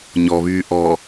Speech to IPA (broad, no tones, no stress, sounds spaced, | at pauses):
ɲ ɔ β yː ʔ ɔ